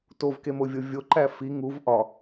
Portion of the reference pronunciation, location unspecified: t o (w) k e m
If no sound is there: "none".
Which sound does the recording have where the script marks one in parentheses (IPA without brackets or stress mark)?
v